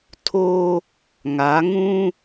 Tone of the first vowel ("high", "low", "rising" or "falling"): high